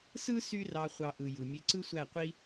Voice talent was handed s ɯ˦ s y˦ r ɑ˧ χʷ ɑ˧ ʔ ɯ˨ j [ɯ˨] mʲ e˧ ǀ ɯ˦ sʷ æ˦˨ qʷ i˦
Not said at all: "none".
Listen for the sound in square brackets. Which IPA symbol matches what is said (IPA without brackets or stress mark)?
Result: ɯ˨